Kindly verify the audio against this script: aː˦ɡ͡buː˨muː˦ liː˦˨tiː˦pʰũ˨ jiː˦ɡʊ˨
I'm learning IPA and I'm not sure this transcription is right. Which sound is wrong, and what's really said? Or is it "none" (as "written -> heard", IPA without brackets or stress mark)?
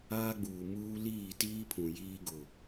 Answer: none